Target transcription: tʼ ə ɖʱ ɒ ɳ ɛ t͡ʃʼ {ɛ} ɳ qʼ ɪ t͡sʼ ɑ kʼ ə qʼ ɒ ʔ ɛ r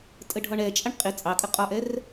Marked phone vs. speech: incorrect: ə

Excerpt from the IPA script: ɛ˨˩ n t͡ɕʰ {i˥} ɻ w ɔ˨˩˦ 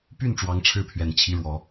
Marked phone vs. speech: incorrect: i˧˥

